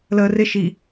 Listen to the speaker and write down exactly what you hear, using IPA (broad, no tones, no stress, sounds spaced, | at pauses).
l əː r ɪ ʃ i